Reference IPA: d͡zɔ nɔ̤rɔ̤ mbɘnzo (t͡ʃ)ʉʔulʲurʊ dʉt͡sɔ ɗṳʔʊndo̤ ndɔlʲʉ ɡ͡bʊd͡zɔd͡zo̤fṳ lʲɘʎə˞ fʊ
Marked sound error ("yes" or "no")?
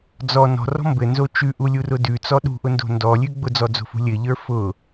no